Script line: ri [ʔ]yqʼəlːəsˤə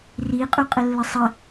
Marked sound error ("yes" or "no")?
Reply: yes